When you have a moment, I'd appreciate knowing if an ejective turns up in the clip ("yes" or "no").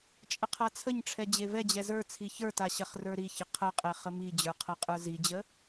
yes